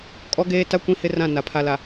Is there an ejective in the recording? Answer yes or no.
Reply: yes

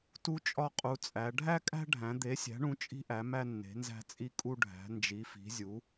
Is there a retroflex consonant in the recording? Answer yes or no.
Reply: yes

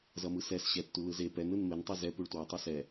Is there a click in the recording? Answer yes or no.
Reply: no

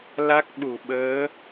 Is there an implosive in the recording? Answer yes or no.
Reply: yes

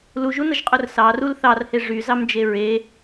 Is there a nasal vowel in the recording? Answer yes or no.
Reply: no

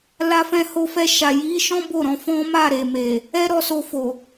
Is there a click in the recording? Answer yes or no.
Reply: no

